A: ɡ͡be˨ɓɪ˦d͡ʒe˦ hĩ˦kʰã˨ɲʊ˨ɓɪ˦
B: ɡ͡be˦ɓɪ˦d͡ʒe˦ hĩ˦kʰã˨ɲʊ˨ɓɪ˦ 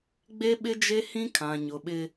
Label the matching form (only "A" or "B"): B